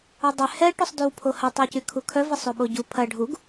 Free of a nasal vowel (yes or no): yes